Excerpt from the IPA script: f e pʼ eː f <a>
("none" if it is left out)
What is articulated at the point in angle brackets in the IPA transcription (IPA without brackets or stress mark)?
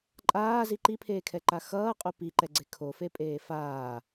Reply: aː